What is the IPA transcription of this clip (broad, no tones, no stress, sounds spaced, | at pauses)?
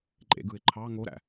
ǃʼ ḛ ɡ ɯ ɪ̯ ǃʰ ɑ ŋ o ɾ æ̰